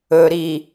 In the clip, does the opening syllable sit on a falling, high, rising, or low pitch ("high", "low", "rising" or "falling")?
low